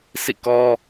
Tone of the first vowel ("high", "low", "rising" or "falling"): falling